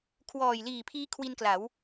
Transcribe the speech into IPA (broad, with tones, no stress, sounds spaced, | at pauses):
kʰ w ɔː˨˩ j l iː˨˩ pʰ iː˦˥ kʰ w i˧ n k l a˩˦ w